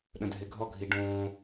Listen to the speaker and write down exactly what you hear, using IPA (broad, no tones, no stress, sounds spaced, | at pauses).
ɗ ə̃ dʱ e ɡʱ ɔ ɡʱ i ɖ õː